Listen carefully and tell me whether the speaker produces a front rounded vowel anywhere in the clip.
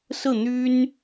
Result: yes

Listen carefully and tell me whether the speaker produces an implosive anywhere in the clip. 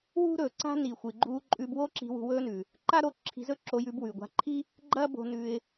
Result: no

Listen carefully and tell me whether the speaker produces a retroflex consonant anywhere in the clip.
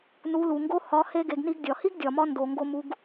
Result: no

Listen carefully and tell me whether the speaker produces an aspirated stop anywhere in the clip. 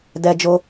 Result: no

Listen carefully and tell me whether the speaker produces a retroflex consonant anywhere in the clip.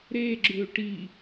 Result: yes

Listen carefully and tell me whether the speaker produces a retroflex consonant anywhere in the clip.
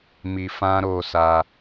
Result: no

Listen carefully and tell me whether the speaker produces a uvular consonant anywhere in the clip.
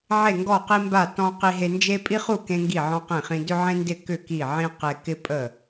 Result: yes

